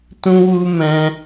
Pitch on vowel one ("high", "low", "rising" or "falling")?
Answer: high